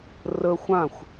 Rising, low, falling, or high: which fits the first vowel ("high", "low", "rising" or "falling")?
high